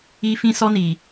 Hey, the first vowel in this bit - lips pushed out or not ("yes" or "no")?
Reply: no